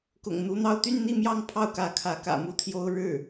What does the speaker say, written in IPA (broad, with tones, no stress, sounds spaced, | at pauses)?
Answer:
k ʊ̰˨˩ ŋ n̪ u˧˥ n̪ ɑ˥˧ ʊ̯ t̪ y˥˧ n n̪ i˥˧ m j ɑ˥˧ ŋ pʰ ɑ˥˩ ʊ̯ k ä˧˥ kʰ ä˧˥ k ä̰˨˩ m u˥˩ t̪ʰ j o˥ ʊ̯ ɻ ɻ̩˥˩